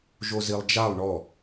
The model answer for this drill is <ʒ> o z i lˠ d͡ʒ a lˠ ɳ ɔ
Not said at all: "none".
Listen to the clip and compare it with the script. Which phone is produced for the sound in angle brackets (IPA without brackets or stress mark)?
ʒ